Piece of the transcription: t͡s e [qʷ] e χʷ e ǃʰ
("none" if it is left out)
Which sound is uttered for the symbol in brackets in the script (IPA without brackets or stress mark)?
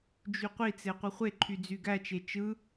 qʷ